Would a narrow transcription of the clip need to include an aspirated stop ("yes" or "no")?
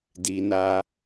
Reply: no